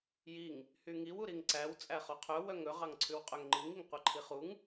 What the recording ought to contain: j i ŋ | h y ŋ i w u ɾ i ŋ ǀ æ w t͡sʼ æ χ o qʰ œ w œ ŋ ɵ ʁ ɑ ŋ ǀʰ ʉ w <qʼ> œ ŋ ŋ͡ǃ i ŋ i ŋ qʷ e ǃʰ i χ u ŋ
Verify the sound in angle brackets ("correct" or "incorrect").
correct